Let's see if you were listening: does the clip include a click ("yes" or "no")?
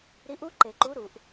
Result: yes